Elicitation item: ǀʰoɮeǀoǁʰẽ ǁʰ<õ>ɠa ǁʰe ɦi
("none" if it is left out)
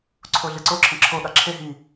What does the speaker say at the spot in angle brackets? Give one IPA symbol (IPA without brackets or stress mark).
o